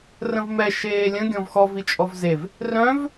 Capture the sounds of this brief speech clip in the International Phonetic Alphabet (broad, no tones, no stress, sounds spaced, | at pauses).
r ə̃ v m ɛ ʃ eː lʲ ə̃ ɡʲ ɔ̃ v x ɔ v i t͡ʃʼ ɔ v z e v | r œ̃ v